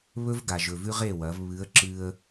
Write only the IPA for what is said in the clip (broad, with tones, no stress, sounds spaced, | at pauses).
β ɵ˦ v ɡ a˨ ʒ ɵ˨ v ʉ˦ ʁ e˦˨ w ɐ˨˦ v β ɨ˨˦ ə̯ ǁ ɨ˦ ə̯